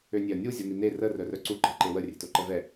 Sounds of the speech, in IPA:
ønʲeɐ̯nʲu zʲonine rə rœrœǀu ǃe̤ǃewə rʲe̤toǃɛvɛ

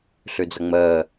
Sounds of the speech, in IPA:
ɬʉd͡zʌŋ͡məː

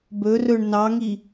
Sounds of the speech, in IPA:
bɵrɵɳ nɑŋi

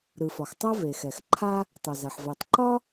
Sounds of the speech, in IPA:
ɾɯ˩fɒ˩xtˤa˥ ve˩xɛ˩xǃʰa˥ | tˤœ˩za˩ħ ve˩tˤǃɒ˥

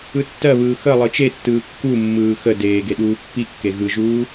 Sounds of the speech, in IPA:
ɯtːɜβɯː xə lˠɯt͡ʃetːɯː kːumːɯː xə deːɡe ɗuːpːikːe ɣɯʒuː

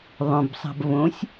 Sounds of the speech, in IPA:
ðˤõbsˤa̤b võsʲ

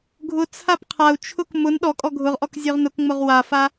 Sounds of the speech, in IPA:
ɡʱʊ t͡sʰapqʰau̯t͡ʃʰʊk mʊn ɗɔkʼɔ ɡʱʊʁʔɔk zʲøʁnʊkŋ͡mʊʁ wafa

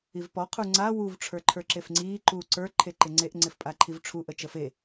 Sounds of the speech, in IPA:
ivpɔ qʰuŋ͡ǀa wuv ʈ͡ʂʰə˞ǃʰə˞ǁefŋ͡ǀiː ǃuːǀə˞ ǃʰeǃɪŋ͡ǀeʔ ŋ͡ǀɪfpʼaǃʰivʈ͡ʂʰu ʔət͡ʃəfe

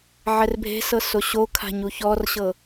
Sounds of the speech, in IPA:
ʕɛrbʱe̤sɤ soɕokʰa̤ ɲuçɔrɕɤ

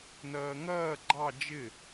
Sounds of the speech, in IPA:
nɜːŋɜː ɡ͡ǃɑ d͡ʒɪ

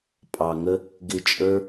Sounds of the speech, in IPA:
pʼɑ˨ŋə˦ | ɡɪ˧t͡ʃʼə˞˦

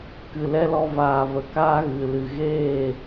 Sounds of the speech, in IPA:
kɨ˨lɛ˦lɔ˧ vaː˨və˨kaː˦ ɣɨ˨ lɨ˨ ɣeː˦˨

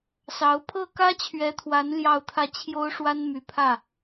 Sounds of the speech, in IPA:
sɑ˧˥ʊ̯ pʰɤ˥˩kä˥t͡ɕʰɥɛ˧˥t̪ʰwa˧˥n ljɑ˥˧ʊ̯t̪ʰä˥˩ t͡ɕʰjo˥ʊ̯ʂwa˥nmy˧˥pʰä˥˩

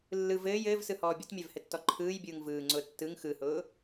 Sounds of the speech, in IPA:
lːɯ vɘːj ɘːvsɯhɔː bʲʊtmʲɛvhɘtːɔ ǃʰɯːjbʲɯːŋ vɯːŋ͡ǀʊː tːɯŋ xɯhʊː

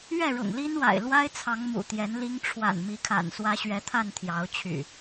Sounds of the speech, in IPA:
ɥɛ˥˨ɻʊ̰˨˩ŋli˦nwa̰˨˩ɪ̯ lwa˦ɪ̯t͡sʰɑ˨˦ŋ mṵ˨˩ t̪jɛ˨˦nli˦ŋ ʈ͡ʂʰwa̰˨˩nmi˨˦kʰa̰˨˩n swä˨˦ɕɥɛ˨˦t̪ʰa˥˨n t̪ʰjɑ˨˦ʊ̯t͡ɕʰy̰˨˩

